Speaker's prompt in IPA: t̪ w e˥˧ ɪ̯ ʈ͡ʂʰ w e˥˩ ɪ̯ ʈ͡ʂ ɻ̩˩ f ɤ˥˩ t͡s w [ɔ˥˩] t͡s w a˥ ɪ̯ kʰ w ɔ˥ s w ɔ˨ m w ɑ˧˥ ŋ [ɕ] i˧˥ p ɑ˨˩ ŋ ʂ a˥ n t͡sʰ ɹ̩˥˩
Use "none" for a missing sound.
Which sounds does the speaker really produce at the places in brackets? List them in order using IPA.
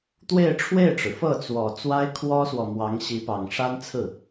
ɔ˨˩, ɕ

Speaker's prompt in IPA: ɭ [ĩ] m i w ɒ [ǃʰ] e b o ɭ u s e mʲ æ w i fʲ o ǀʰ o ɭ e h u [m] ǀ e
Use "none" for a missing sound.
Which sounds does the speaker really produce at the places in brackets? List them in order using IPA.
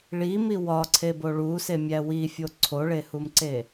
i, ǀʰ, m

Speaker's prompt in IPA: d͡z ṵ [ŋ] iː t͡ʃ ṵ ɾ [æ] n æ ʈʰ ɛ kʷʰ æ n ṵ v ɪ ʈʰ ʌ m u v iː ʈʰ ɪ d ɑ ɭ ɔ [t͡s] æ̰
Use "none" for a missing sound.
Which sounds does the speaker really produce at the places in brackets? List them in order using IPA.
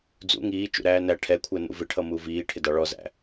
ŋ, æː, z

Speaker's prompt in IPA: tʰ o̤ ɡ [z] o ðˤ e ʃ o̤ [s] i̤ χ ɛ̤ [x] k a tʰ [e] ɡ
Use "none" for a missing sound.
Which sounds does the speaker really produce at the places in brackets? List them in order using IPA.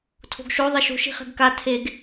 ʃ, ʃ, ɡ, e

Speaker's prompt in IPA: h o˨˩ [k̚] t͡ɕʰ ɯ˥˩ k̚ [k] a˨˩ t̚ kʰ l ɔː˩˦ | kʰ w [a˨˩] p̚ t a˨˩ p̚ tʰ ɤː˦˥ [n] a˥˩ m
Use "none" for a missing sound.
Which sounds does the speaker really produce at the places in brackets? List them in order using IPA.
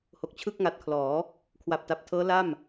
k̚, ŋ, a˨˩, l

